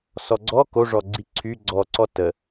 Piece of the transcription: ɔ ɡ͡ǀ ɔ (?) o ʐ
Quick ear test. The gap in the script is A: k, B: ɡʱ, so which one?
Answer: A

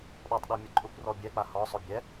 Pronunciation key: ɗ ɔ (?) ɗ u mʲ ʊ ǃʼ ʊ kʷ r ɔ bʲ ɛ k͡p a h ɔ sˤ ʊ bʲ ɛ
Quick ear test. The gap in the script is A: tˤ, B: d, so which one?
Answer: A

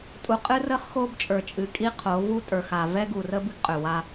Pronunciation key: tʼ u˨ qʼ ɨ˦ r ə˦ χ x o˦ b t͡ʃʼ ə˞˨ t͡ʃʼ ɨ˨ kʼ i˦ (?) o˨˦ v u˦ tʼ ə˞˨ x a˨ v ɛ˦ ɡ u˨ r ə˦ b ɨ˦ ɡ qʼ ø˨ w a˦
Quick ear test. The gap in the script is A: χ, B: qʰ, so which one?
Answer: B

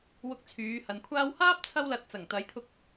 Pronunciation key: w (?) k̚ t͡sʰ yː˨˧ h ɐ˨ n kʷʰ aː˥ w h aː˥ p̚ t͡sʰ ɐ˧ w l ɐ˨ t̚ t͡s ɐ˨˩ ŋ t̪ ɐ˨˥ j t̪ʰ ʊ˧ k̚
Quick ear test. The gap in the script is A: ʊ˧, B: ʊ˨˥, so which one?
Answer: A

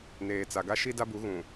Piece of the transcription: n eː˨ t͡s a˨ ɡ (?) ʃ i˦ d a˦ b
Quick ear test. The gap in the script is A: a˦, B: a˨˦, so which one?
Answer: A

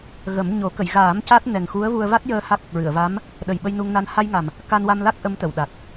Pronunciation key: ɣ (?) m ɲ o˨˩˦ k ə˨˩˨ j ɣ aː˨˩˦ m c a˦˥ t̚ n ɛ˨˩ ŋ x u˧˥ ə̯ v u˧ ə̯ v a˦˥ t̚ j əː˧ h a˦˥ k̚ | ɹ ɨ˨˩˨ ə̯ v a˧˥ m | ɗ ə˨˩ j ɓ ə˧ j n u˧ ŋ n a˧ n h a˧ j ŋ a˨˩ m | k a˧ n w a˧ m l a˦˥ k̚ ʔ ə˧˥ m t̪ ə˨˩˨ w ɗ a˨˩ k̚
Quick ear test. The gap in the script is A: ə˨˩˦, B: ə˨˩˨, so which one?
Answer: A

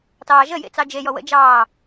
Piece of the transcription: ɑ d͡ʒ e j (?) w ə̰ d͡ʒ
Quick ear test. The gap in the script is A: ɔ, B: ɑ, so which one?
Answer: A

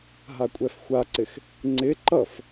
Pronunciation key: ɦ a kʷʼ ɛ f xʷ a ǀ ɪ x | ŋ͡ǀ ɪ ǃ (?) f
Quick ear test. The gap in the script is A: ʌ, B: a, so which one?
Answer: A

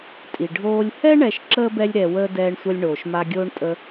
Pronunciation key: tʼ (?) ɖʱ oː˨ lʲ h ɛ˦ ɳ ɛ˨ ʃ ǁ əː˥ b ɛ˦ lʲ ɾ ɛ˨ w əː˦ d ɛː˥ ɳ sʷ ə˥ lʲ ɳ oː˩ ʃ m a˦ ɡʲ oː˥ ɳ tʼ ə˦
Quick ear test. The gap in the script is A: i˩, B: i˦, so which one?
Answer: A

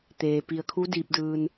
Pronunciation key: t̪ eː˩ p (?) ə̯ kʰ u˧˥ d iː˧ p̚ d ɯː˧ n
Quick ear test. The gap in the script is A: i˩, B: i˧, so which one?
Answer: A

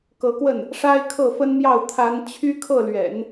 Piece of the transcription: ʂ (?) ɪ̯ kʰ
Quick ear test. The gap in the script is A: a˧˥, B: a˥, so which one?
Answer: B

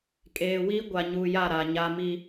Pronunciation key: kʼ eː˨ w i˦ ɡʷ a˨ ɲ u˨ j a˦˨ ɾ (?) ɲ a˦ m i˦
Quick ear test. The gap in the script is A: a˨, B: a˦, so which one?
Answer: A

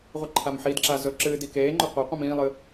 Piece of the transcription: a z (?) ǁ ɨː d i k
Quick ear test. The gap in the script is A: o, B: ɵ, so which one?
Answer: B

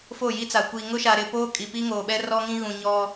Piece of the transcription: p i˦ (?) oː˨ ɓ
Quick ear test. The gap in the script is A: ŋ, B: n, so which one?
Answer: A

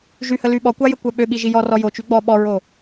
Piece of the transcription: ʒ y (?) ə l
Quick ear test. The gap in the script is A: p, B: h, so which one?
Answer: B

